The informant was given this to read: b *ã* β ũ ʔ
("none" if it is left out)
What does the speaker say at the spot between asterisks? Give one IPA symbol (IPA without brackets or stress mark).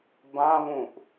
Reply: ã